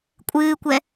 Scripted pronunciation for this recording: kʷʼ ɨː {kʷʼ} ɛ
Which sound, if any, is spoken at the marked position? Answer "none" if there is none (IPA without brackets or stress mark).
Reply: kʷ